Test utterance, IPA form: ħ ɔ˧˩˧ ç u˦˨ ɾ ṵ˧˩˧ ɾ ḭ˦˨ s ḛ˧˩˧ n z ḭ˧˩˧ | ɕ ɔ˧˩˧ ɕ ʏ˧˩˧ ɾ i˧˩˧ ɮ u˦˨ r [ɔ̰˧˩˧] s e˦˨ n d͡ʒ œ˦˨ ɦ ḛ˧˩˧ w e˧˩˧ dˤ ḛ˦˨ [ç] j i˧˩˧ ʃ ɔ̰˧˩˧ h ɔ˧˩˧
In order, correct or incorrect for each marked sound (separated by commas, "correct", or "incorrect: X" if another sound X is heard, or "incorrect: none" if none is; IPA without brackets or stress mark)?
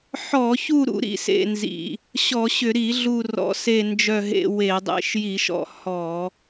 correct, incorrect: ʃ